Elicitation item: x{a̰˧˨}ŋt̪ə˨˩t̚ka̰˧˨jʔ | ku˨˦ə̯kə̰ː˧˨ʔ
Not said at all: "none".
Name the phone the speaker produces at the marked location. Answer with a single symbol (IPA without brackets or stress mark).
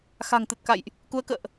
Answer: a̤˨˩